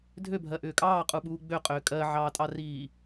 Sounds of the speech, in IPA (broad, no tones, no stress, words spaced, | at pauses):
dʱøbʱɜʔʏː kʼɑːqʼuɓuː ɡ͡bøqʼʏː kʼɜʕɑːtʼɑriː